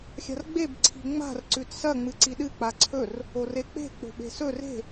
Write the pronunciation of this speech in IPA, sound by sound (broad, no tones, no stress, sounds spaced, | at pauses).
xʲ a̤ r ɡ͡b e b ǀʰ i̤ ŋ͡m a̤ r ǀ ʉ t s ɐ ŋ͡m ɨ ǀ i ɗ ɨ k͡p a ǀʰ ɵ r | o r e k͡p e̤ k͡p o̤ ɓ e̤ s ɵ r e̤